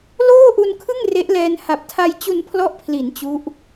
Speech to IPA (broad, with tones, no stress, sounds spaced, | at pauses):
l oː˥˩ ʔ u˧ n kʰ ɯ˥˩ ŋ r e˦˥ ʔ l ɛː˧ n h a˨˩ p̚ tʰ a˧ j t͡ɕ u˧ n pʰ l ɔ˦˥ ʔ pʰ l i˩˦ n t͡ɕ u˦˥ ʔ